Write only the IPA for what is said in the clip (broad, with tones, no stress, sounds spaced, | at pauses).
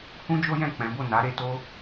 h ũ˦ d͡ʒ o˦ j ɛ̃˦˨ k͡p ɛ̃˨˦ b o˦˨ n a˨˦ ɾ e˧ t o˦